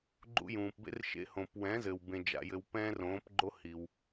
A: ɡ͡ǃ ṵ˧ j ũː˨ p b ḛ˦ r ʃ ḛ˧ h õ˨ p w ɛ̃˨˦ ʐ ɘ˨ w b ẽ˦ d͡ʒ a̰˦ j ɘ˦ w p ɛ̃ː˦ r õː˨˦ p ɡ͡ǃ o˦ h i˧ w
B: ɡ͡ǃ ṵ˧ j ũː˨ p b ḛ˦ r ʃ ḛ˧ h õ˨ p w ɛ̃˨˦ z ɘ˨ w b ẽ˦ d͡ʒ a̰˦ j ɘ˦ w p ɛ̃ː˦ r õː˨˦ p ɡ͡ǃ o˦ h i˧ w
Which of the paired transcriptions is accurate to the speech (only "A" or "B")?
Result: B